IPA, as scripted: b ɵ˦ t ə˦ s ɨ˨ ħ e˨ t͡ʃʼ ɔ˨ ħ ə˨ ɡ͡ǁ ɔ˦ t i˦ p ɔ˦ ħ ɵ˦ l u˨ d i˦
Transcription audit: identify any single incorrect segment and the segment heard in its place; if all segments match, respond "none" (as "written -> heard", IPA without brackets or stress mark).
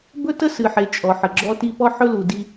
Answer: none